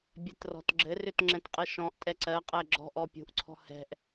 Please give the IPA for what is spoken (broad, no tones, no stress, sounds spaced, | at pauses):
bʲ ɛ t r ɔ̤ t ɡ͡ǁ ɘ r ʏ t ŋ͡ǁ ɛ̃ t qʼ ɘ ʃ ɔ̃ ʔ tʼ ɛ ǀ ɜ qʼ ɛ ɡ͡ǁ ɔ̤ ʔ ɔ pʲ ṳ ʔ ǀʰ ɔ̤ h ɛ̤ ʔ